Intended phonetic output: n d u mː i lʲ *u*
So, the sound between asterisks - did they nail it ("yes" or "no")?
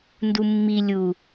yes